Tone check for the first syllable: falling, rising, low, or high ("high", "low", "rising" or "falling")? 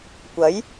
rising